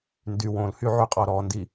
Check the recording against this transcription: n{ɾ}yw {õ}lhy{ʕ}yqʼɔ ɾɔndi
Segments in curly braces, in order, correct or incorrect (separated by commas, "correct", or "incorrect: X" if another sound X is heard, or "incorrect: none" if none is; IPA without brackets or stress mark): incorrect: d, correct, correct